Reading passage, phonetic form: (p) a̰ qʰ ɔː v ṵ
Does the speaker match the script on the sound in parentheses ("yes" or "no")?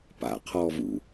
yes